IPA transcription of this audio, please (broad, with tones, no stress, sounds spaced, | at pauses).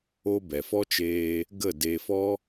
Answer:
o˦ b ɛ˨ f ɔ˦ t͡ʃ eː˧ | ɡ ə˦˨ d e˧ f ɔ˦